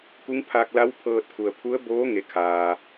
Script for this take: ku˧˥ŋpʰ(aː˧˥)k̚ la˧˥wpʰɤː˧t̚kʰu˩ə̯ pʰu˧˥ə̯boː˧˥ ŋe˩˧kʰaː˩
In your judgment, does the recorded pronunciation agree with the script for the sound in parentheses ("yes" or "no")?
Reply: no